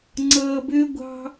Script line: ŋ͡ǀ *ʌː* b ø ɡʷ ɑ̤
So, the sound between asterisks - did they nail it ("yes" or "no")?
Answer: yes